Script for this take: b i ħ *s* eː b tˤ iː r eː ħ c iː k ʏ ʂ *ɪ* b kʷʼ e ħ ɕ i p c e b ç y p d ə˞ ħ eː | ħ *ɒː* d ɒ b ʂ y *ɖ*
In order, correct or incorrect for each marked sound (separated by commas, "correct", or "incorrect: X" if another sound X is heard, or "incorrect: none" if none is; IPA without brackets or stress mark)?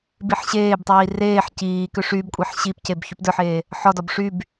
incorrect: ɕ, incorrect: y, incorrect: ɒ, incorrect: b